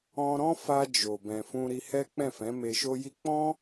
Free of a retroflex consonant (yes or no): yes